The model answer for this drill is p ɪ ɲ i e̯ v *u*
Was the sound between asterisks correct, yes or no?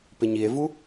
yes